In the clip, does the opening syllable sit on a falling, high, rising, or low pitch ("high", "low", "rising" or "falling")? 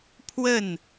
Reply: falling